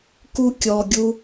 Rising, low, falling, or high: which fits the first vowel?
high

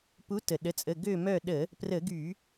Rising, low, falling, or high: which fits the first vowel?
rising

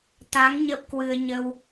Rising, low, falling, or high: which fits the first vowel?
rising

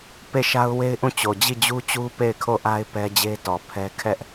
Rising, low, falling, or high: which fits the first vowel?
falling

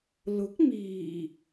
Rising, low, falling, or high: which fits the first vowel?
rising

